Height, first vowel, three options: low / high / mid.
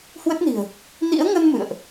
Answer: mid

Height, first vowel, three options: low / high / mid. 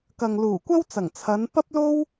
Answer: low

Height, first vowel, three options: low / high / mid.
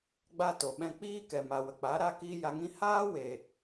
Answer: low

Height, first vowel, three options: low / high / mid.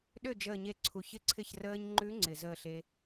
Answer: mid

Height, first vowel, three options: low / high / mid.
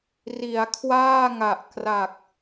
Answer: high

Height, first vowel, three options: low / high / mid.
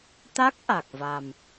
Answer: low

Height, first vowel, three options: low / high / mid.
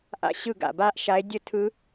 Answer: low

